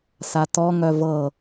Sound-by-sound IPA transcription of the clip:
s a t ɔ ŋ œ v ɤ

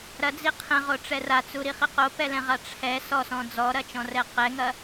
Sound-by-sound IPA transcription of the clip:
ɾ ɐ d͡z i qʰ ɛ̃ ʁ o ʈ͡ʂ ɛ r a t͡s u ɾ i χ i q o p ɛ l ɛ̃ ʁ a ʈ͡ʂʰ ɛ s ɔ s ɔ̃ d͡z ɔ ɾ ɐ t͡ʃ ɔ̃ r ɛ q ɛ ŋ ɐ

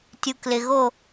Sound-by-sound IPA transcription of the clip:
tʲ u˨ k l ɪ˨ ɣ o˦˨

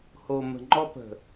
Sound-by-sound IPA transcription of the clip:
h o˨ m ə̤˨ ŋ͡ǃ ɔ˦ p ə̤˨

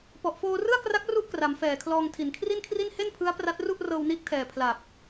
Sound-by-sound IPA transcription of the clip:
p ɔ˨˩ ʔ f oː˧ r ɯ˥˩ a̯ k r a˦˥ k̚ r u˥˩ ʔ k r a˩˦ m f ɛː˨˩ kʰ l ɔː˧ ŋ tʰ i˨˩ n kʰ r i˥˩ n kʰ r i˥˩ n h e˥˩ n pʰ ɯ˦˥ a̯ p r a˦˥ t̚ r u˥˩ ʔ r ɤː˧ w n iː˦˥ k̚ tʰ ɛː˨˩ pʰ l a˨˩ p̚

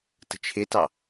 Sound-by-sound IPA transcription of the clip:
t ə̤ t͡ʃʰ ɪ t ɑ

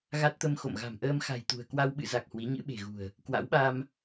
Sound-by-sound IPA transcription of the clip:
ɣ a˦˥ t̚ t̪ ə˧ m x o̰˧˨ m ɣ a̤˨˩ m ʔ əː˧ m x a̤˨˩ j t̪ ṳ˨˩ ə̯ k w a˧ w ɓ ɨ̰˧˨ z a˨˩ k̚ h w i˨˦ ɲ ɨ̰˧˥ ɓ e̤˨˩ ɣ ṳ˨˩ ə̯ | k w a̰˧˥ w ɓ a˧ m

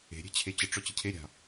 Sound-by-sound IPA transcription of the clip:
e̤ ɾʲ e̤ t͡ɕʰ e t͡ɕ ə ʈ͡ʂ ɔ t͡ɕ ə cʰ e ɾʲ a̤

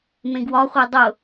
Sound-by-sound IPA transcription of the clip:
m ẽ ɡ w ɒ χʷ e dˤ ʊ

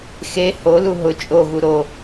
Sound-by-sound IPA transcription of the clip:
x e h o l u ɦ ʊ t͡ʃʼ o ɣ u ɾ o

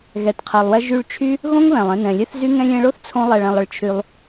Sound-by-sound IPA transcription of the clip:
ɣ ɛ˨ t qʰ ɛ˨ lˠ w ɛ˧ ʒ y˧ ɭ t͡ʃʰ y˦ | ɣ õ˦ ŋ β ɛ̃˨ lˠ ɛ̃˧ n ɛ̃˨ lʲ ɛ˦ θ z y˦ ŋ ɛ̃˧ lʲ ɛ̃˧ ɭ o˦ θ t͡sʰ õ˦ lˠ ɛ˧ ɭ ɛ̃˧ lˠ ə˧ ɭ t͡ʃʰ y˧ lˠ

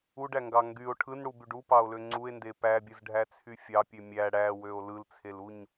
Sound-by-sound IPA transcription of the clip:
u ɖ æ ŋ ɡ ɑ ŋ ɡ y o̯ ʈʰ ɯ n ɽ u b y ɖ u p ɑ o̯ l ø ŋ͡ǀ u e̯ n d e p æ bʲ ɯ z ɖʱ æ t͡sʰ y fʲ ɑ pʲ ø mʲ æ ɽ æ w ø o̯ l ɯ l t͡sʰ e l u ɲ

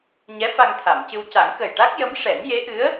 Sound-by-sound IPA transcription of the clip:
ɲ ɛ˧˥ f a˧ ŋ t̪ʰ a˨˩˨ m c ɨ˧ w c a˨˩˦ ŋ k ə˨˩ j ʈ a˦˥ k̚ j ə˧˥ m ʂ ɛ˨˩˦ n j e˧˥ ʔ ɨ˧˥ ə̯

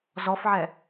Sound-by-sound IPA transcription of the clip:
z ɔ f ʕ ɛ

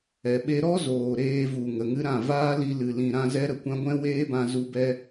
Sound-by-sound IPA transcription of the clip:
ɛ˨ ɓ e˦ ɾ ɔ˦ z oː˨ ɾ eː˧ v u˨ ŋ ə˨ ŋ ɨ˦ ɾ ã˦˨ v aː˦ l i˧ l ɨ˨ l ĩ˨ ɾ ã˧ z ɛ˦ ɾ ə˨ kʷ ã˦ ɡʷ ɛ̃˦ w eː˦ b ã˧ z u˧ b ɛ˦

